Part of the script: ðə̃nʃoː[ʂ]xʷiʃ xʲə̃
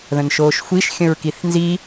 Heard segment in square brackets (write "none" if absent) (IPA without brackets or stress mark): ʃ